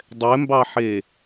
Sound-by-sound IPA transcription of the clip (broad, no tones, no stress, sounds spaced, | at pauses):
dˤ ɛ m b ɑ ħ e